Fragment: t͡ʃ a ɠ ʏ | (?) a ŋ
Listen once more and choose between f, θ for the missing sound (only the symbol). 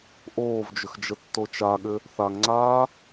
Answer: θ